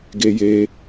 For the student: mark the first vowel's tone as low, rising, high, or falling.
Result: high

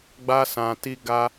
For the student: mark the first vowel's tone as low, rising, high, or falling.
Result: high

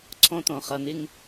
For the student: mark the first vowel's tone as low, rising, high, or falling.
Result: high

